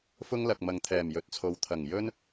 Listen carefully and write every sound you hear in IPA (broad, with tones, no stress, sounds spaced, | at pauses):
f ʊ˥ ŋ l ɐ˨ k̚ m ɐ˨ ŋ t̪ʰ ɛː˨˩ m j ɵ˨˥ t̚ t͡sʰ o˨˧ w t̪ʰ ɐ˨˩ ŋ j ɵ˥ n